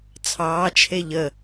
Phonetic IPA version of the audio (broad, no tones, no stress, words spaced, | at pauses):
t͡sʰɑːt͡ʃʰe ʎə